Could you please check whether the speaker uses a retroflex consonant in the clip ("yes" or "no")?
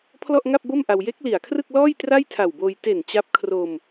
no